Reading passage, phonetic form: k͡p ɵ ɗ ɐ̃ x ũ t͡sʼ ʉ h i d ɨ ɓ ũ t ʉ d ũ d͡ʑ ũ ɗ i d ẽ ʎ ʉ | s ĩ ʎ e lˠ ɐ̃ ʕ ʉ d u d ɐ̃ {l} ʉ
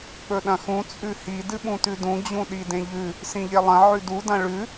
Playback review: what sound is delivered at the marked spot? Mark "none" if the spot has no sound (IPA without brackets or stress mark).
ɭ